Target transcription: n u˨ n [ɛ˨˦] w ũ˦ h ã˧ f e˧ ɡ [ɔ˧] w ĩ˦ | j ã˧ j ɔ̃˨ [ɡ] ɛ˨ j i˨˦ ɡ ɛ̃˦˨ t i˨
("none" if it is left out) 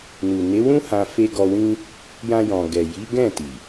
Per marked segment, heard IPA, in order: e˨˦, ɔ˧, ɡ

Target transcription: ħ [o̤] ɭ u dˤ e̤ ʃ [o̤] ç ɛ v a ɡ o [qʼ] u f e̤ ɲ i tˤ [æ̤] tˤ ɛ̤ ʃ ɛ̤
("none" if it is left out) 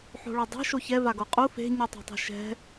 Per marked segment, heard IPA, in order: o̤, o, qʼ, ɛ̤

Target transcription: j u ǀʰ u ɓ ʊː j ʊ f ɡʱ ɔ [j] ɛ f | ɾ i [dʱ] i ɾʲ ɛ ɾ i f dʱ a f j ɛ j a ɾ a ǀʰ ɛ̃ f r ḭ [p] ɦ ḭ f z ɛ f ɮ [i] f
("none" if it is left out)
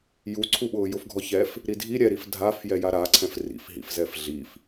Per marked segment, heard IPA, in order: ç, dʱ, f, i

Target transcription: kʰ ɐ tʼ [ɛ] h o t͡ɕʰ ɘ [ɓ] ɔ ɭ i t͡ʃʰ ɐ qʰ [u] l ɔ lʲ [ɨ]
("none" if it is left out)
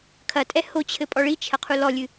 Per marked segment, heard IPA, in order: ɛ, pʼ, u, ɨ

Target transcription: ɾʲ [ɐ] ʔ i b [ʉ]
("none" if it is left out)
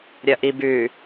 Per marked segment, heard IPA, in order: ɐ, ʉ

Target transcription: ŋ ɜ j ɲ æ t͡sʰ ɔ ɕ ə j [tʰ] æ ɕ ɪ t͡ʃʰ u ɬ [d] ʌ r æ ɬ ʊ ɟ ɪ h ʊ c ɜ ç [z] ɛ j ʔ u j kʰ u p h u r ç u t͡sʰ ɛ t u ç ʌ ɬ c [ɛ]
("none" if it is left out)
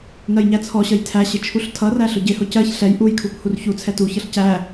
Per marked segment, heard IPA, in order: tʰ, tʰ, ɬ, æ

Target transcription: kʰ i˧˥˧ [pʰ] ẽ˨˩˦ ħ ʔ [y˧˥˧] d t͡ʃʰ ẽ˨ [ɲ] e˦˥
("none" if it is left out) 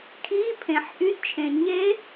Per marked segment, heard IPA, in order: pʰ, y˧˥˧, ɲ

